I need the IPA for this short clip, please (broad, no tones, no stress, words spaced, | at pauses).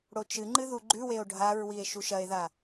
ɽot͡ʃɨŋ͡ǃɨ ðuɡ͡ǃʉweo̯ ɖʱaɹwie̯ ʃuʃɐe̯ða